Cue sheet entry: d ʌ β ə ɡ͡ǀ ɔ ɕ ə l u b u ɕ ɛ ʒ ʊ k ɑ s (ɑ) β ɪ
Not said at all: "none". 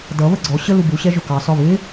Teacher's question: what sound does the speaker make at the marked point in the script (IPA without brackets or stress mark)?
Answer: ɒ